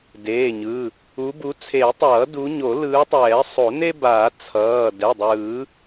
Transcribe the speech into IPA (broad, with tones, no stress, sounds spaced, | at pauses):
d eː˩˧˩ ɲ ɯ˩˧˩ | u˨˦ b u˨˦ t͡sʰ e˨˩˦ tˤ ʌː˨˩˦ d u˨˦ ɲ o˨˩˦ l ɯː˨˦ tˤ ɛː˨˩˦ sˤ o˨˩˦ n e˥ b aː˨˩˦ t͡sʰ ʌː˩˧˩ d ɛ˩˧˩ dˤ ɯː˨˩˦